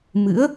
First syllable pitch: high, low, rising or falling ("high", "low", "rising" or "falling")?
rising